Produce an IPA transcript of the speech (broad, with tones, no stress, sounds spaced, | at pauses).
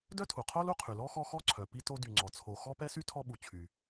d œ˥ tʰ u˩ qʰ o˥ l u˦ qʰ y˩ l ɔ˥ x ɔ˦ x ɔ˥ ǀʰ œ˩ p i˦ t o˦ d y˨ ŋ͡ǀ ɔ˩ t͡sʰ o˨ x ɔ˥ p ɛ˥ s y˥ tʰ ɔ˦ ɓ u˨ t͡ɕʰ y˨